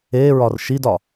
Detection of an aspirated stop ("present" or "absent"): absent